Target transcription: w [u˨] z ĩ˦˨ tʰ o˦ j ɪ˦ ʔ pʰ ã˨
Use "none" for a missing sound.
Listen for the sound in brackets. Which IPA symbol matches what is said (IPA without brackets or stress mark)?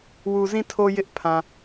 u˨